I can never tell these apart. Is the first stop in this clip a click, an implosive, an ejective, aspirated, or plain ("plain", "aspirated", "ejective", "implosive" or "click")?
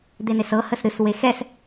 plain